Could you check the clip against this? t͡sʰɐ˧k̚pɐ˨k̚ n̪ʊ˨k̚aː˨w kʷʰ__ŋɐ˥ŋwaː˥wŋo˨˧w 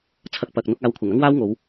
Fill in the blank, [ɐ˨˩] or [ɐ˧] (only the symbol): ɐ˨˩